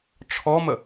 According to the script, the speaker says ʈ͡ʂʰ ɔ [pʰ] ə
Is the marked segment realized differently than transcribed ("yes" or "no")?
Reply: yes